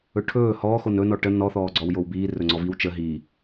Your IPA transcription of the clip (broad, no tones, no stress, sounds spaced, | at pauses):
ɵ ʈʰ ɵː h ɔː x o n ɵ n ɔ ʈ ə n ɔ θ ɔː ɡ͡ǀ ɔ w j o w b iː r ɵ ŋ͡ǀ ɔ v i w t͡ʃ ə ɦ iː